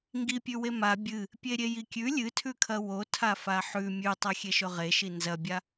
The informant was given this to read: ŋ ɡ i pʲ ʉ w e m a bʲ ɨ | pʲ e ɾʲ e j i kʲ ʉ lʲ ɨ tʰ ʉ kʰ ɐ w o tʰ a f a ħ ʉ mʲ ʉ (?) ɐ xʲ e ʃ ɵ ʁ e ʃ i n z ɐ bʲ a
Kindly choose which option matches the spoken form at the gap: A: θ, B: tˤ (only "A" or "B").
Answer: B